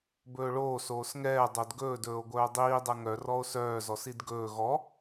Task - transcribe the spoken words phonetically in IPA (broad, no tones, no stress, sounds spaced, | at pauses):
b ɵː ɭ oː s oː s ŋ ɛː dˤ o d ɡ ɵː d ɵː o̯ ɡʷ œː dˤ iː dˤ ɛ ŋ œ r ɔ o̯ s œː z ɔ s i d ɡ ɵː ɣ ɔ